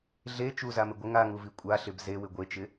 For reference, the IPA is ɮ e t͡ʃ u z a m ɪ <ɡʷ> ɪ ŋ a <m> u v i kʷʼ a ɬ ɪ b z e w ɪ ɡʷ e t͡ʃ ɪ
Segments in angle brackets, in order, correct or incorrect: correct, incorrect: ŋ

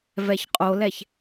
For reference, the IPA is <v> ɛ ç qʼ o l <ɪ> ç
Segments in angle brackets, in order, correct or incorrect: correct, incorrect: ɛ

